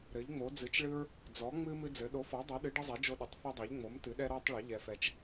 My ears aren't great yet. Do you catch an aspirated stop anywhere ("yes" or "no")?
no